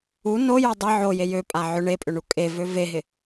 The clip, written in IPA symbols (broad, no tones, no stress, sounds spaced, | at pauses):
u n o j o dˤ ɪ ʕ o j e j ø pʼ a ʕ ʏ ɳ e pʼ ʏ ɳ u kʼ e v ø v e ɦ ɪ